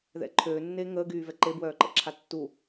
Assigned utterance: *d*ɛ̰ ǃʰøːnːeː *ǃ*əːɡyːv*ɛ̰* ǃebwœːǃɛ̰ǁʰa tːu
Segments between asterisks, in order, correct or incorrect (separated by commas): incorrect, incorrect, incorrect